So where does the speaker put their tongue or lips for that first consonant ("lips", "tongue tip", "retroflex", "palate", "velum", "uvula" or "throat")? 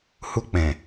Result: throat